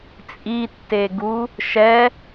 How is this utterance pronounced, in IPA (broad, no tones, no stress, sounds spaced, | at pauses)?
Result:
t͡sʼ i tː e ɡ u | ʃ ɛ